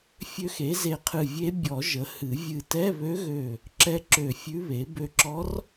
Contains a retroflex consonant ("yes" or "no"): no